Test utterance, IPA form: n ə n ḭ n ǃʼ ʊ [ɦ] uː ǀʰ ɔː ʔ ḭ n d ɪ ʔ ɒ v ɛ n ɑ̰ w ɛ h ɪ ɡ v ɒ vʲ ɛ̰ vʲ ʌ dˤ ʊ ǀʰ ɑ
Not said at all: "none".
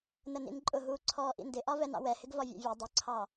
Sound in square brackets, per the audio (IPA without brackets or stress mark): ɦ